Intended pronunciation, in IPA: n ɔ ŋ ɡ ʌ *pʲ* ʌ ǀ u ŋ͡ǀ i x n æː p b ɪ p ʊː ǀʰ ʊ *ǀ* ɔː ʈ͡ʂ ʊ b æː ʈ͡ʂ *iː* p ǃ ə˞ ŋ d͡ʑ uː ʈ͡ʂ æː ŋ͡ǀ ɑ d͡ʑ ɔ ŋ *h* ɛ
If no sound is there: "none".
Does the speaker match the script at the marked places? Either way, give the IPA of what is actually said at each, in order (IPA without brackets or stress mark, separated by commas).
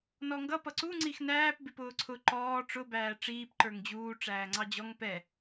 p, ǃ, iː, p